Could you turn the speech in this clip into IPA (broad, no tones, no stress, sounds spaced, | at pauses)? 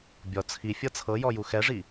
bʲ ɔ t͡sʰ i fʲ ɤ t͡sʰ ɤ j ɔ j u x ɛ ʐ i